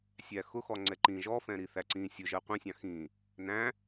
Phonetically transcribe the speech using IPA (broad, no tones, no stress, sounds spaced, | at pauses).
sʲ æ x ʊ x ɔ ŋ͡ǀ ɛ ǃ ĩ ʒ ɔ f ɛ̃ ɾ i θ æ ǀ ĩ sʲ ʊ ʒ ɜ qʷ ɛ̃ sʲ ɑ̃ x ĩ | n æ̃